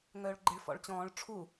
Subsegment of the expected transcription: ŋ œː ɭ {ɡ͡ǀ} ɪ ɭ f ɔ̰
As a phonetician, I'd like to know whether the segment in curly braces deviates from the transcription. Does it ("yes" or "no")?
yes